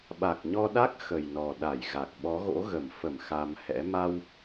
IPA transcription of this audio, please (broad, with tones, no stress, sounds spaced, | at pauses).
ɓ a˨˩ k̚ ɲ ɔ˧ ɗ a˦˥ k̚ x ə˨˩ j n ɔ˨˩ ɗ a˧˩ j ɣ a˨˩ k̚ ɓ ɔ˨˦ ɣ o̰˧˥ ɣ ə˧˩ m f ə˧˩ m x a˧ m h ɛ̰˧˥ m a˧ w